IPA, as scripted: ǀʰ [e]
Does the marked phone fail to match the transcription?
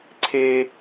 no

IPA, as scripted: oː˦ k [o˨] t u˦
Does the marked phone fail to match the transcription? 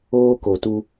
no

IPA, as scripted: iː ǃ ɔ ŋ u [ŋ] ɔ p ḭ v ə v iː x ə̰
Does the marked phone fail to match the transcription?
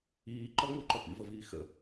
yes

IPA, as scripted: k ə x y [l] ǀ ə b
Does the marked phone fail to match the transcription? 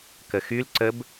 no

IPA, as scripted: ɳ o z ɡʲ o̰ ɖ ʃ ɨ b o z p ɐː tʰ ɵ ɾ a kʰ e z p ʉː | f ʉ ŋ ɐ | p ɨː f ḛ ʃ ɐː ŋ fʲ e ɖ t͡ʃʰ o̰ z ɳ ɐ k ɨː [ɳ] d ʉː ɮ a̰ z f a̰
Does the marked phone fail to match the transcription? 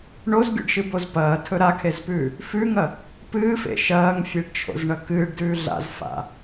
yes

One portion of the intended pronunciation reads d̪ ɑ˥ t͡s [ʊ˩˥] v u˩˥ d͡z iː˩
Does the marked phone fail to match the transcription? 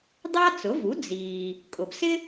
no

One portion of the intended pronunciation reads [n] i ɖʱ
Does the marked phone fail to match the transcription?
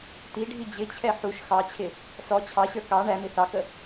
yes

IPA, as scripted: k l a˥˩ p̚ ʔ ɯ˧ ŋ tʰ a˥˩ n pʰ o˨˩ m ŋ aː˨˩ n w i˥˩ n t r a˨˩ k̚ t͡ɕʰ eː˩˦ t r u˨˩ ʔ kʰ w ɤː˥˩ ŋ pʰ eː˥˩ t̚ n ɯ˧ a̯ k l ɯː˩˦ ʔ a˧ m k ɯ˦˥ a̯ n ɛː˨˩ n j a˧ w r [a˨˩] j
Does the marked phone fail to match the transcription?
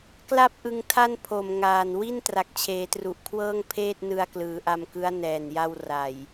no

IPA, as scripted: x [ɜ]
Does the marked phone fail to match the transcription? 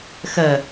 no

